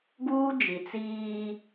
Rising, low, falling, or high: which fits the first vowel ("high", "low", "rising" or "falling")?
high